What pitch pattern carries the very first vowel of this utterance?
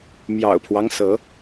low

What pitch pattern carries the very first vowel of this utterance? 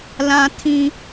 high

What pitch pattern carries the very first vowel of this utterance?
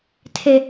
high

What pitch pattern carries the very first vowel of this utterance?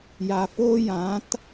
low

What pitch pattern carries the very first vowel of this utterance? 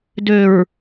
low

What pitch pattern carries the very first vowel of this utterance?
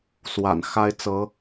low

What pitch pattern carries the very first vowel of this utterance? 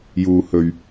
low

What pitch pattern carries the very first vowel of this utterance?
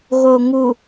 low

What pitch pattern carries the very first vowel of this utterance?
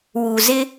low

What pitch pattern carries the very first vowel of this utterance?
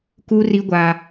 high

